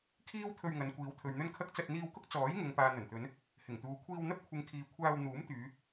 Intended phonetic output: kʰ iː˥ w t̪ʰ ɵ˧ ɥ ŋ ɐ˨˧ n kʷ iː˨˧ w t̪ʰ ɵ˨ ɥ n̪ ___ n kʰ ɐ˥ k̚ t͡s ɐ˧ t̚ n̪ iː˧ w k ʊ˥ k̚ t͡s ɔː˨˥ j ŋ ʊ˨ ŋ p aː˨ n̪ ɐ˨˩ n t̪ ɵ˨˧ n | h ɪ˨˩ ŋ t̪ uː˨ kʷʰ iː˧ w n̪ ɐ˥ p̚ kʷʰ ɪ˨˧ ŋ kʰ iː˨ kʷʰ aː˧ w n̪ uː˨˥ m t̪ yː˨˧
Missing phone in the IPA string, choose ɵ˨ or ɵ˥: ɵ˥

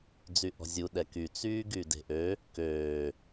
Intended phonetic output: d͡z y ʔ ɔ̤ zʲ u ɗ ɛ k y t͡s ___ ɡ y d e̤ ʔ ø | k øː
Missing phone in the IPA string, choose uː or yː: yː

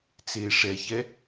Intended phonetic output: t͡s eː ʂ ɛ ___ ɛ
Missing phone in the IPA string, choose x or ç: ç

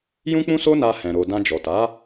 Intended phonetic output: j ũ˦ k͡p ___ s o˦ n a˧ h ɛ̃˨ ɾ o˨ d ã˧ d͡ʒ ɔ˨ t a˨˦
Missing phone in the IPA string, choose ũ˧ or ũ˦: ũ˦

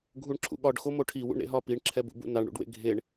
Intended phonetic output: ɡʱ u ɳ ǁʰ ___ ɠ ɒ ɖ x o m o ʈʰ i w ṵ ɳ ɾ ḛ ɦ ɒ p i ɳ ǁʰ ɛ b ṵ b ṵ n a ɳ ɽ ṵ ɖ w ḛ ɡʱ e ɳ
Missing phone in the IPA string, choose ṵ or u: ṵ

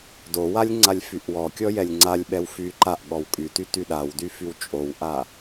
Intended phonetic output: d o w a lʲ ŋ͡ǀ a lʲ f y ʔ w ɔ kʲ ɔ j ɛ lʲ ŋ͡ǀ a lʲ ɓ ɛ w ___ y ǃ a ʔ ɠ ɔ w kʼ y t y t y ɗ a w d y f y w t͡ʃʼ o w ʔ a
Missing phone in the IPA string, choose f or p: f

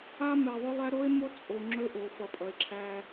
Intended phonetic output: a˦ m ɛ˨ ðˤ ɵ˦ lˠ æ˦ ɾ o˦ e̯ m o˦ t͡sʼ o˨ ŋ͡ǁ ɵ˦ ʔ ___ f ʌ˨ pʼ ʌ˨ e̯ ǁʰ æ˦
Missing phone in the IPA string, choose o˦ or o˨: o˨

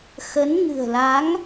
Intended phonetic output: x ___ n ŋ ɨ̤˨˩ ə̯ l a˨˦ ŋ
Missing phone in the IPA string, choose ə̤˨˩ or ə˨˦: ə˨˦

